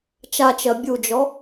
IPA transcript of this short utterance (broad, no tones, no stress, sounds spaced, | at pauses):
t͡ʃ a t͡ʃ ɜ bʲ u d͡ʒ ɔ